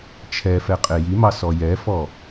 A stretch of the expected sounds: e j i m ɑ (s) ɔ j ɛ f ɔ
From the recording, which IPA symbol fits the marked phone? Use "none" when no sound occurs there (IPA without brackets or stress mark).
s